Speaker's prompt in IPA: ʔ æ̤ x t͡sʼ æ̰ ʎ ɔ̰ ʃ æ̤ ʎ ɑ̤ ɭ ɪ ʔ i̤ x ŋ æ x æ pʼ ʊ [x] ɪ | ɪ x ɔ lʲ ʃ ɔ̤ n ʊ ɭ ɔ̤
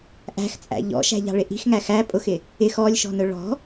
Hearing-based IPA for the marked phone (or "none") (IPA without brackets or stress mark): x